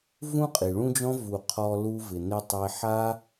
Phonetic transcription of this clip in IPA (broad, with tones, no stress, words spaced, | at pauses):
vũ˦qʼi˨ɭũ˦d͡ʒɔ̃˦ vu˨qʰɔ˧ lu˧vɪ˨nɪ˧tˤe˧ ħa˦